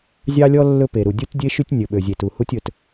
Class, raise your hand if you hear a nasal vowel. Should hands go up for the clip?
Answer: no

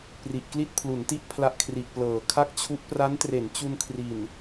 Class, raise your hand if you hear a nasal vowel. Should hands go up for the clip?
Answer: no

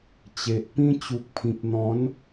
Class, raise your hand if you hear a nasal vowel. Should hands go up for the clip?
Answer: yes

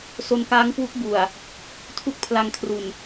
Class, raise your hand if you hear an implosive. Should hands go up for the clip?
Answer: no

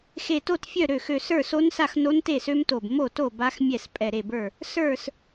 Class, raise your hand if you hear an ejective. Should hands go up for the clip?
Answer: yes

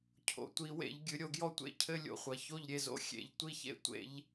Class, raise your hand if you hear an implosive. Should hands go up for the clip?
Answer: no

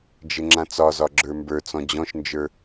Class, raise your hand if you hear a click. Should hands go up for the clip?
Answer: yes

